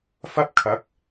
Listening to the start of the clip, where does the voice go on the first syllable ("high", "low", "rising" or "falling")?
high